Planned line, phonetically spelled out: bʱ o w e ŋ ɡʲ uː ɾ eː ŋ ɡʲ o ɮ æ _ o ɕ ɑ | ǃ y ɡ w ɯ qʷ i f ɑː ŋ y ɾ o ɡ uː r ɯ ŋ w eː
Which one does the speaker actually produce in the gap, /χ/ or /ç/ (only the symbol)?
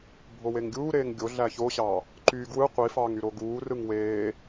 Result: ç